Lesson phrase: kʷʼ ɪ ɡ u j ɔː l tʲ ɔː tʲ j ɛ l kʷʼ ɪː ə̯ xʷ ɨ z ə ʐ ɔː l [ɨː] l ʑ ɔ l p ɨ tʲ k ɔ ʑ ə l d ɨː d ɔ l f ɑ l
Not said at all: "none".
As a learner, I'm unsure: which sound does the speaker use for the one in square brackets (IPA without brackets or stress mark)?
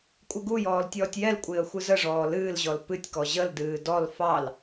ɨː